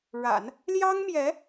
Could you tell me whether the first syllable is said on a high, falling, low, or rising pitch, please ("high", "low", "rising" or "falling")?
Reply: low